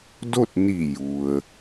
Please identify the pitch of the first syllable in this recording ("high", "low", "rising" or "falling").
falling